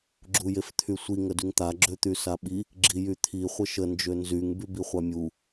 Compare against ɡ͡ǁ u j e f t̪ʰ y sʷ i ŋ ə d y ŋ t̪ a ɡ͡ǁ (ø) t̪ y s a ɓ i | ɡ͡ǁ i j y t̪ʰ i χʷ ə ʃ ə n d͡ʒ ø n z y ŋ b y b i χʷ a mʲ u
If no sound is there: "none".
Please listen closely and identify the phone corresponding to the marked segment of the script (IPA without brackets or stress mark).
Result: ø